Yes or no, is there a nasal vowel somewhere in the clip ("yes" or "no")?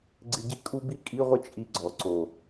no